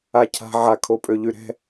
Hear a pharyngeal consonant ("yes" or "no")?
yes